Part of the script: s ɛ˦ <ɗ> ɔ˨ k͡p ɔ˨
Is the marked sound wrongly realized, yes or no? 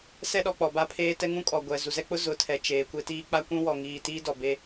no